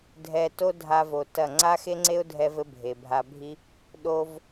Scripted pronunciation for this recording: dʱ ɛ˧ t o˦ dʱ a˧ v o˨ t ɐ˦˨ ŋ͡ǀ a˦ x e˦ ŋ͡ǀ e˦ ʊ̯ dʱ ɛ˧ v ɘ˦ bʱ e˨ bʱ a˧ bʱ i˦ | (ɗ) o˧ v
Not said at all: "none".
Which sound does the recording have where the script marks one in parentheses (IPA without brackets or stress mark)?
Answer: ɗ